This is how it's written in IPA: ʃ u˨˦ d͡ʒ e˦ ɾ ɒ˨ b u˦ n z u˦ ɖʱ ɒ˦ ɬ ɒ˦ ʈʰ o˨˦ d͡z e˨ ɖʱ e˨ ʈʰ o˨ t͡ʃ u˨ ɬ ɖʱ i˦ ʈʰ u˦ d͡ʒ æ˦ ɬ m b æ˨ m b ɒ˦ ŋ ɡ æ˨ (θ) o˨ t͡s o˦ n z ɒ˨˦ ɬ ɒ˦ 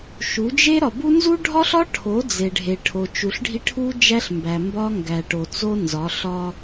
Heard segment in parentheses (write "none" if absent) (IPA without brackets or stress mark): ʈ